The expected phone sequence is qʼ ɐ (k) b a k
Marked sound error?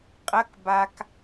no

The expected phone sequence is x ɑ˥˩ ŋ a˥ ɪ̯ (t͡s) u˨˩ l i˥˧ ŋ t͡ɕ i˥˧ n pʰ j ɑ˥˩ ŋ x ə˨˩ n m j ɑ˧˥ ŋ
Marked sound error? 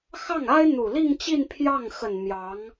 yes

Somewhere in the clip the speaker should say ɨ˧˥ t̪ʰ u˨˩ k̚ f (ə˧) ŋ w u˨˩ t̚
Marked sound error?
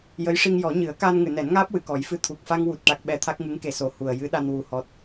yes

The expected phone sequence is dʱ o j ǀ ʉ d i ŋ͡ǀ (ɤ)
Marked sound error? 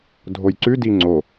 yes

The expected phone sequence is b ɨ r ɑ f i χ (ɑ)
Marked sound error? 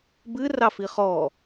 yes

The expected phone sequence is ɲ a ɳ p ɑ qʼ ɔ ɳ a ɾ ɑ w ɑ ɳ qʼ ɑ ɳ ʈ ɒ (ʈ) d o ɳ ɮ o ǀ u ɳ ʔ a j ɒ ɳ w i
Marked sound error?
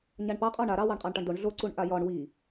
yes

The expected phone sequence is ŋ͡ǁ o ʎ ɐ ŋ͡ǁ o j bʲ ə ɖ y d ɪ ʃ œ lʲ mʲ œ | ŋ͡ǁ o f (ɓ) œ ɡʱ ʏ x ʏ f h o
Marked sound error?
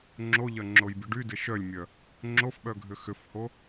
no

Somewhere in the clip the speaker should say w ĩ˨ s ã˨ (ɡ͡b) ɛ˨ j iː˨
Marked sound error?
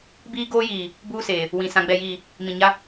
no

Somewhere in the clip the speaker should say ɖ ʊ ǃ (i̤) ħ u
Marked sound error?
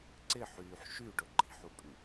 no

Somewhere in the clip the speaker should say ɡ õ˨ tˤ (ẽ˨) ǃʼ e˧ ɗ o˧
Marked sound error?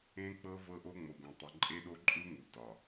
yes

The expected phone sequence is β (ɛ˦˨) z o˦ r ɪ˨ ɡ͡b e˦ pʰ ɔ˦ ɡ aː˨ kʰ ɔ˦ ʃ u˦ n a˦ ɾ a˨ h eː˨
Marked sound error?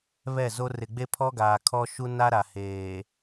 no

